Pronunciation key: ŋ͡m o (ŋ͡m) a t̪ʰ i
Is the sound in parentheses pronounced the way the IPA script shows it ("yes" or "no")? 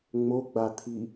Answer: no